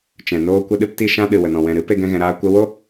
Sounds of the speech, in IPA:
t͡ʃɛ̃˨noː˧ kʷə˧ɗɨ˧pti˧ ʃã˧ɗɨ˨ wə˨nɔ̃˨ wɛ̃˨ɾɨ˨˦ pe˦ɡɛ̃˦ɣɛ̃˧ɾaː˦ kʷə˧wo˦

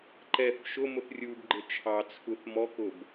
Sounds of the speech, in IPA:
ǃɛθ ʃʊmʊθ rʲubɡ͡ǃɪ t͡ʃʰɑt͡sʰuθ mɔkʊb

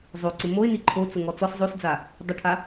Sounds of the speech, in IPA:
zˤoǀɪ moɪ̯ni ǃʰot͡sʊŋɔ t͡sɔs zˤosd͡za | dˤɪʈʰa

